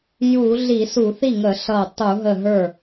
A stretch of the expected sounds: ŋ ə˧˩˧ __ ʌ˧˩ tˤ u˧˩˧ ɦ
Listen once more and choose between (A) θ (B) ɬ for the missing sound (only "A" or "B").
B